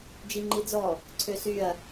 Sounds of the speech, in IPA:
d͡ʒ i ŋ͡ǃ i d͡z ɔ | ǀʰ ø s y ɐ̯

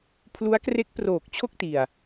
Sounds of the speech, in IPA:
pʰ l u˦˥ a̯ k r e˦˥ k̚ p r oː˨˩ k̚ t͡ɕʰ o˥˩ k̚ t i˨˩ a̯

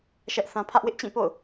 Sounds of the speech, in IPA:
ʃ ɛ˦ ʔ θ ã˦ pʰ ä˦ ʔ w ɪ˦ ʔ t͡ɕ ĩ˦˨ p o̰˦˨ ʊ̯

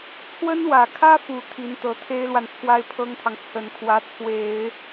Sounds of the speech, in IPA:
t͡sʰ w ə˥ n w ä˨˩ kʰ ä˥ f u˨˩ t̪ʰ i˧˥ n t̪ ɤ˧˥ t̪ʰ e˥ ɪ̯ l w a˨ n t͡sʰ w a˥ ɪ̯ pʰ ɤ˥ ŋ t̪ʰ ɑ˨ ŋ t͡sʰ ə˨˩ n kʰ w ä˧˥ t͡sʰ w e˨˩˦ ɪ̯

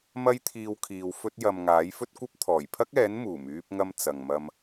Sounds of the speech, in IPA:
m ɐ˥ j t̪ʰ iː˧ w kʰ iː˨ w f ɵ˥ t̚ j ɐ˨ m ŋ aː˨˥ j f ɵ˥ t̚ kʷ ɐ˥ p̚ t̪ʰ ɔː˨˩ j pʰ ɐ˥ k̚ ɛː˨˥ n m uː˨˩ m yː˧ p̚ ŋ ɐ˧ m t͡s ɐ˨ ŋ m ɐ˧ m

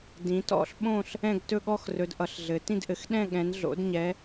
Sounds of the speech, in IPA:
d ĩ˨˦ t ɔ̰˥˧ ɬ ɓ õ˥˧ ɬ | ɛ̃˥˧ ɡ t ɵ˥˧ ɠ ɔ˥˧ x r ɵ˨˦ d ʔ ʌ˨˦ ɬ ɮ ɘ˨˦ t ĩ˥˧ d ʔ ɘ˨˦ x ɗ ɛ̃˥˧ ɠ ɛ̃˨˦ n ɮ o̰˨˦ d ɲ ɛ˨˦

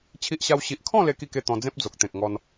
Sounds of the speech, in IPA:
t͡ɕʰ i˦ ʔ ɕ a˦ w ɕ i˨ ʔ kʰ ɔ̃˥˧ l e˦ k i˥˧ k e˥˧ t̪ ɔ̃˧ d͡z ẽ˦ p̚ d͡z o˨ k̚ t̪ ẽ˨ k̚ ŋ ɔ˧ n

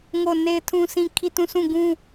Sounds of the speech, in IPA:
ŋ o˦˨ n e˦ ɪ̯ tʰ ũ˦ sʰ ĩ˦ kʰ i˦˨ t ũ˦˨ sʰ ũ˦˨ ɡ ũ˦

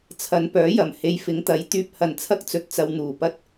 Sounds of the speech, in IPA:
t͡sʰ ɐ˨˧ n p œː˨˥ j ɐ˨˩ m h e˧ j f ɪ˨˥ ŋ t̪ ɐ˨˥ j t̪ yː˧ p̚ h ɐ˨˩ n t͡sʰ ɐ˥ k̚ t͡s ɵ˨ t̚ t͡s ɐ˧ w n̪ uː˨˩ p ɐ˥ t̚

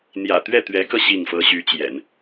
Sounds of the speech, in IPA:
n̪ j ä̰˨˩ t̪ ɥ ɛ˥˩ t̪ ɥ ɛ˧˥ k ɤ˧ ɕ i˥˩ ŋ f ɤ˥ ɕ y˧˥ t͡ɕ j ɛ̰˨˩˦ n

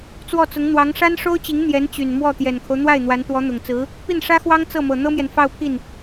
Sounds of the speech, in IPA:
t͡s w ɔ˥˩ t͡s ʊ˧˥ ŋ n̪ w ɑ˧˥ ŋ ʂ a˥ n ʂ o˥ ʊ̯ t͡ɕ i˧˥ ŋ n̪ j ɛ˧˥ n t͡ɕ y˨˩ n m w ɔ˥˩ t̪ j ɛ˨˩ n kʰ o˦ ʊ̯ n̪ w a˥˩ ɪ̯ n̪ w a˧˥ n t̪ w ɔ˧˥ n̪ ʊ˨˩ ŋ t͡s ɹ̩˧˥ | p i˥˩ n ʂ ä˥ x w ɑ˥ ŋ t͡s ɤ˥˩ m ɤ˨˩ n̪ ɤ˥ m j ɛ˨ n f ɑ˥˧ ʊ̯ pʰ i˥˩ n

